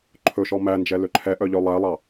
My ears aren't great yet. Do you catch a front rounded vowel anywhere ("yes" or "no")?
yes